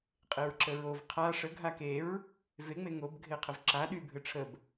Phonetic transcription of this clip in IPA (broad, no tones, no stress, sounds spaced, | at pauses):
qʼ e ɹ ǁ ə ɹ o v qʰ a ʂ ə ɡʱ a k e ɹ | v e ŋ͡m e ŋ o b ɡʱ e qʰ ə v ǁ a ɗ y bʱ ɘ ʈ͡ʂʰ ə b